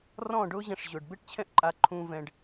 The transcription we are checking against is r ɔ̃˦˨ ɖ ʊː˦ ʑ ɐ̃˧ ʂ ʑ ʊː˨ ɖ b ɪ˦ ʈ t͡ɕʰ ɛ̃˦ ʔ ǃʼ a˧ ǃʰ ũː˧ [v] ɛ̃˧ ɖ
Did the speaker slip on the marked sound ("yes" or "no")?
no